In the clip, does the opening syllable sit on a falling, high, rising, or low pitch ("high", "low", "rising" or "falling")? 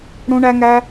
high